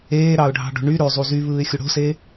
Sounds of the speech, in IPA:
eːɾɑʊ̯ɖʱɑ̤ɖo̤ ɳy ɾøzˤu zyβɯːɪ̯xʲu ɽo̤se

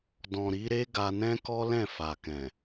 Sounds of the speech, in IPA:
dɔ̃˨ɾi˨˦ ɾe˦ɡa˧nɛ̃˦kɔ˦ lɛ̃˦˨fa˨kɛ̃˨

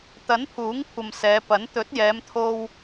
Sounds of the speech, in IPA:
t̪ɐ˨˥npʰuː˨˥ŋkʷʰɐ˨m sɛː˨˧pɐ˨˥n t̪ɵ˨˥t̚jɛː˨˧mt̪ʰo˧w

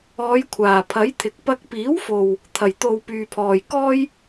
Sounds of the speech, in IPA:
ɔː˨˧jkʷʰaː˨˩pʰɐ˨˥jt̪ʰɪ˨k̚ pɐ˧k̚piː˨˥wfo˨w | t̪ʰɐ˨˩jt̪o˨w pyː˨pʰɔː˨jkɔː˥j

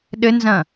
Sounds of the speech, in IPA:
ɗɘnzɐ̃

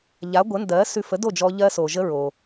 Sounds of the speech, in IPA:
ʎa˩˥ɡʷə˩˥ndɜ˩˥ sʉ˧fə˩˥do˥˩d͡ʒɔ˧ ʎɜ˧so˩ʒə˧ ɹo˩

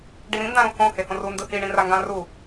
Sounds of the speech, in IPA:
ɖiɾĩndã ɾõhõ hehõru ndɯhiɳĩra ŋɡãru

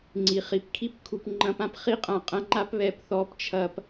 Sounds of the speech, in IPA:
ŋ͡ǀi˨ χi˨pkʰi˦pkʰu˨p ŋ͡ǃɐ̃˧pã˧pχi˦ qʼã˧qʼɐ̃˦ŋ͡ǃa˦pβɛ˨˦p θɔ˨˦p t͡ʃʰɐ˨p

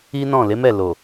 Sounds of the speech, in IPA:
i˦nɔ̃˦˨ le˨˦mɛ˦˨ lo˨

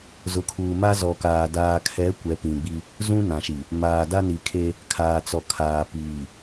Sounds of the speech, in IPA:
zʊ˨˦kʰuː˨ ma˦zɔ˨kaː˨ daː˨kʰɛ˨˦ kʷɛ˨˦pĩ˨ɡ͡bi˦ | zũ˦nã˨ʃi˨ | maː˨da˦ ni˨kʰe˦ | kʰaː˨t͡sɔ˨kʰaː˨ piː˨

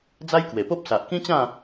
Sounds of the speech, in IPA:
d͡za˦jkwe˨˩po˦p̚ sa˨ʔkĩ˦t͡ɕã˥˧

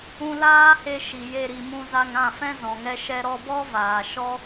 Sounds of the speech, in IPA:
ũ˧laː˦he˧ ʃi˨je˧ ɾi˨mũ˧za˧ŋ ã˦˨fɛ̃˦ zɔ̃˨ŋɛ˦ʃɛ˦ ɾɔ˧bɔ˦ vaː˨ ʃɔ˦

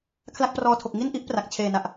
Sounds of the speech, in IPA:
kʰla˥˩k̚prɔː˧tʰo˨˩k̚ ŋi˥˩nʔi˦˥ʔ pra˨˩k̚ t͡ɕʰeː˨˩na˨˩ʔ

